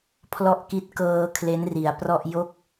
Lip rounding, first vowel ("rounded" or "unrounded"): rounded